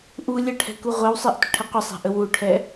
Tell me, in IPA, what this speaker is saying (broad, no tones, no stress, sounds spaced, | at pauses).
ʔ u lʲ ə ʈʰ ɛ̤ k u ʁʷ ɛ w sˤ ɛ ʔ tʷ ə̤ ʈʰ ə qʷ ə sˤ ɛ̤ ʔ ə w u ʈʰ ɛ